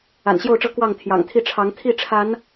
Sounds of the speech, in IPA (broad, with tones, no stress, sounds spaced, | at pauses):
a̰˨˩ n ɕ j o˥˨ ʊ̯ ʈ͡ʂ ɤ˦ k w ɑ˥˨ ŋ t̪ʰ j ɑ̰˨˩ ŋ t̪ʰ i˥˨ ʈ͡ʂʰ ɑ˨˦ ŋ t̪ʰ i˥˨ ʈ͡ʂʰ a˨˦ n